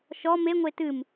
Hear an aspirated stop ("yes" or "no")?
no